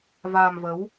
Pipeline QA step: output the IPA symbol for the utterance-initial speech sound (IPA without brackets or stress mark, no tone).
v